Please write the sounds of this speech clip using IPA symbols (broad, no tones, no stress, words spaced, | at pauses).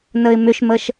nəɪ̯mʏʃməʃ